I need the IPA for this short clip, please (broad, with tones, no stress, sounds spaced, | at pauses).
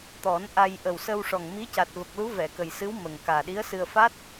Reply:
t̪ ɔ˨˩˦ n ʔ a˧ j ʔ ə˨˩ w s ə˧ w ʂ ɔ˨˩ ŋ m i˧˥ c a˨˩ t̚ v ə˨˩ k̚ l u˧˥ v ɛ˨˩˨ k ə˨˩ j s ɨ˧˥ w m ə˨˩ ŋ k aː˨˩ ɗ i˧˥ ə̯ s ɨ˧ ə̯ f a˦˥ t̚